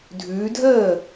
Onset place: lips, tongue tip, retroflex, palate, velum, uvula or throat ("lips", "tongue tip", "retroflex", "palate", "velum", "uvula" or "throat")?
tongue tip